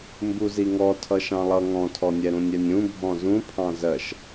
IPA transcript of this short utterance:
mbuziŋɔ tʰʌʃɑ̃lˠʌ ŋɔ̃tʰɔnʲɛ ɾũnʲɛnʲũ bʱɔ̃zũpʰɑ̃ zɜʃ

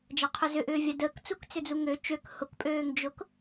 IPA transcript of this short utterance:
d͡ʒaqʰʊzʏʔʏː vʲadəːkt͡suk t͡sʏd͡zuŋø t͡ʃøk hʊkpʼøːŋ d͡ʒʊk

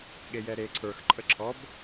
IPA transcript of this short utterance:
ɠejɛɾe ǀʰə˞x ǃʼəǁʰɔb

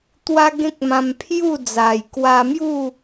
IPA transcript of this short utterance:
t̪wa˦ɡẽ˦k̚mã˧m pʰju˥˧d͡za˨˩jkwa˧mju˥˧

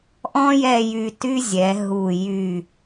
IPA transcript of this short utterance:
ʔɔ̃˥ jɛ˥˧jy˧ty˥zʲɛ˩˧ ɦu˧˩ jy˧˩

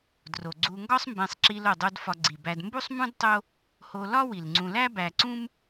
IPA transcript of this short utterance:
dro˩ɡ͡ǀu˨ŋɡɒ˦sˤmbẽ˨sˤ ǁi˨lo˩dˤo˨d fɒ˨ɡ͡ǀi˩bæ˨dmbu˥sˤ mũ˥dtˤo˦ | ho˨ lɒ˥wi˩lŋ͡ǀũ˨læ˥ bæ˨ǀũ˥m

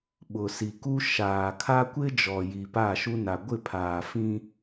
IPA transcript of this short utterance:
ɓʊ˨ si˨ku˦ ʃaː˨kʰa˦ kʷɪ˦d͡ʒɔ˨ ji˨pa˦˨ʃu˦na˨ ɡʷɪ˦˨pʰaː˨fĩ˦

